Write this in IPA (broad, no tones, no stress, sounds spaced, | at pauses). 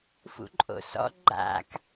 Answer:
f ṵ ǃʼ o̰ s ɔ̰ ɡ͡ǃ a̰ k